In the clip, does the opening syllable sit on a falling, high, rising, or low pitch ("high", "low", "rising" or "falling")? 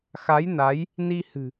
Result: rising